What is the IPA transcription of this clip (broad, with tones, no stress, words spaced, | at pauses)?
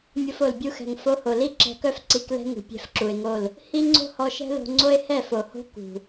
mʲo˧fo˨l bʲu˧xɛ̤˨ŋ fo˧ho˨li˦ ǁɛ̤˧kœ˦f ǀi˧klɛ̤˦ ŋṳ˨pʲɛ̤˧f ǁu˨e̯ŋo˦˨l | hi˦ ŋ͡ǀo̤˦hɔ˧ʃɛ̤˦lo̤˧ ŋ͡ǀo˦e̯hɛ˦˨fo˨ho̤˦ kṳ˨